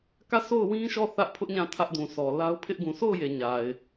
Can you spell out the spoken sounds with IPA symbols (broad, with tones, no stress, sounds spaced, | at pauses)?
k ä˦˨ s o˦˨ ʊ̯ w ĩ˦ ʃ ɔ˦˨ θ ä˦ ʔ pʰ ʊ˦ ʔ ɲ ã˦˨ tʰ ä˦ ʔ d ũ˨ s ɔ˨ l a˦ ʊ̯ pʰ ɪ˦ ʔ ɡ ũ˨ sʰ o˦˨ ʊ̯ j e˨ ɲ a˨ ɪ̯